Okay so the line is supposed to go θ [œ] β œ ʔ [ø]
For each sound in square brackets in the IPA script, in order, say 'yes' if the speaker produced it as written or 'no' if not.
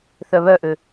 yes, yes

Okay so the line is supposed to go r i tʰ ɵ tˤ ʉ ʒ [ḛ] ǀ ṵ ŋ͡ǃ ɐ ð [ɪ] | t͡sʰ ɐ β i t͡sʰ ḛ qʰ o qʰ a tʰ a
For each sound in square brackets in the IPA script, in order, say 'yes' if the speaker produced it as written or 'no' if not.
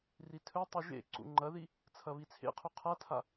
yes, no

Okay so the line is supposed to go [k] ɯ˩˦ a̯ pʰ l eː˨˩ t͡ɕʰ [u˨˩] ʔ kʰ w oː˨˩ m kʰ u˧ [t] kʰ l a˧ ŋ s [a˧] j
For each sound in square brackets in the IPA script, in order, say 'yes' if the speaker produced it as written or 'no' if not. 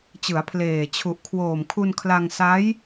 no, yes, no, no

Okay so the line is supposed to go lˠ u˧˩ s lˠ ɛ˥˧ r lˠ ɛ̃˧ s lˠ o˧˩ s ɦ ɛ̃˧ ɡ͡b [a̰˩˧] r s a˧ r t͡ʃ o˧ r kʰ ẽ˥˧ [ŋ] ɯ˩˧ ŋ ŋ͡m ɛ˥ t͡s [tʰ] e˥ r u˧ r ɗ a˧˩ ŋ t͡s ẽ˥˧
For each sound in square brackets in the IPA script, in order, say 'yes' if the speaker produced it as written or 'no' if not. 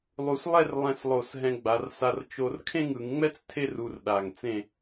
no, yes, yes

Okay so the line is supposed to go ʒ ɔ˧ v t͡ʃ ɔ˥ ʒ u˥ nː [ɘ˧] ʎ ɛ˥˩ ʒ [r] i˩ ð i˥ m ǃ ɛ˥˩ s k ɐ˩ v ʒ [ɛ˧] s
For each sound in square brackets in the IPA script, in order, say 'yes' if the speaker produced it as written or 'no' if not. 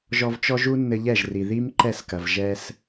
yes, yes, yes

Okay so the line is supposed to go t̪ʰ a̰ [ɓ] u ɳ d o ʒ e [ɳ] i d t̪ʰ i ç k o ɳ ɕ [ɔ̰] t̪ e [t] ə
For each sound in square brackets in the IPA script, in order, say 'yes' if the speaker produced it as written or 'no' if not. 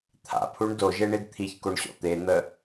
no, yes, yes, no

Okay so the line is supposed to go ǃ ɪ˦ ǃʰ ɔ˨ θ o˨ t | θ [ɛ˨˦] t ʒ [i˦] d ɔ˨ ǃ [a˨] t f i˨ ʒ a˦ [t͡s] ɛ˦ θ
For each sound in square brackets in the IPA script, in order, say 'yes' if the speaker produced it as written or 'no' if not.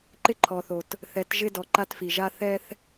yes, no, no, no

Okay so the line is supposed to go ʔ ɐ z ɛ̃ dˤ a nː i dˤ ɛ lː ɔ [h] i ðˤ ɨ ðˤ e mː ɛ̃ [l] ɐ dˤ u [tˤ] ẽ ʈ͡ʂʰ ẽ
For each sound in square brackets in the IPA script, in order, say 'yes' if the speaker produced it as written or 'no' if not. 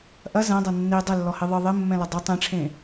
yes, yes, yes

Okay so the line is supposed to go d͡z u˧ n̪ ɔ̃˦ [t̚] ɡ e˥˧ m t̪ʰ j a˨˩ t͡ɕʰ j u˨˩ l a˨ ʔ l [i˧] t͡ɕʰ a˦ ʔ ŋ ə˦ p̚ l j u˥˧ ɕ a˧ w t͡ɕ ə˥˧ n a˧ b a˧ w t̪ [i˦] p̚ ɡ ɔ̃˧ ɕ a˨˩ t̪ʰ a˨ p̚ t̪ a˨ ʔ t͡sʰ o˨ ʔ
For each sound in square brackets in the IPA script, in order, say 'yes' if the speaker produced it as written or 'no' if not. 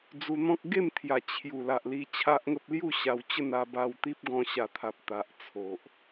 no, yes, yes

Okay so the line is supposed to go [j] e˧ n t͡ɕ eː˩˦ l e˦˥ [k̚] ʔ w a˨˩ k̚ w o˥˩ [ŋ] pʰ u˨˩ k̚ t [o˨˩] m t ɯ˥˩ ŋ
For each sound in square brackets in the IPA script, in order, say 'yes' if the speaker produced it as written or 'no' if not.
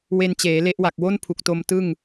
no, no, no, no

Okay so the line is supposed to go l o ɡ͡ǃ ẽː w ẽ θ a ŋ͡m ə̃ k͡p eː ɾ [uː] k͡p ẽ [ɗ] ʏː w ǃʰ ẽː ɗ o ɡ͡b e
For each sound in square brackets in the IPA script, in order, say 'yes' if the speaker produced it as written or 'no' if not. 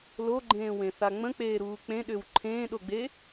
yes, yes

